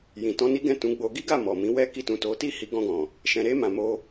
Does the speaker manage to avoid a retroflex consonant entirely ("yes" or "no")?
yes